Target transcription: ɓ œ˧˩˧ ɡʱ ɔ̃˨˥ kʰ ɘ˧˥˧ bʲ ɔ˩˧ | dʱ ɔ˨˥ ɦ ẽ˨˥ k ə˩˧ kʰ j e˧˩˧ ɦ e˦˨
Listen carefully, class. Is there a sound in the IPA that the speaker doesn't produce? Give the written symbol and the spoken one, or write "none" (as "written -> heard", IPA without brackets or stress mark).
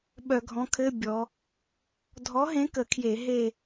none